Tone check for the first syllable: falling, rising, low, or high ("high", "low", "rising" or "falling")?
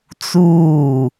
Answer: falling